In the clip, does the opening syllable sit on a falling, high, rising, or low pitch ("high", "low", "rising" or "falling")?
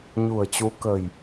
low